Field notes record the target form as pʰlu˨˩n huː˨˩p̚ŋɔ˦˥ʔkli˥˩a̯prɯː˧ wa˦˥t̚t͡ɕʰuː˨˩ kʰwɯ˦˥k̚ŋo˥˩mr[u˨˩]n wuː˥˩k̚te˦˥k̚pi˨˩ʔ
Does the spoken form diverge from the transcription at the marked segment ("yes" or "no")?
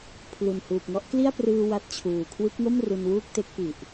yes